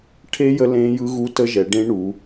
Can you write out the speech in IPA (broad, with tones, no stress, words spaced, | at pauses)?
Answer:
ʈʰe˦˥ jə˦˥lẽː˦˥jɯ˦˥ ɣu˦˥tə˦˥ʒɛ˨˦ ɖẽ˦˥ɳu˨˦